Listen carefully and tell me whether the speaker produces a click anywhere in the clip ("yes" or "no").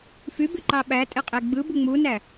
yes